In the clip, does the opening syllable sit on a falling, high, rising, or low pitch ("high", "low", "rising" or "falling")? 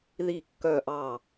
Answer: falling